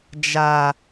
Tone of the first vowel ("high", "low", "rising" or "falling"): high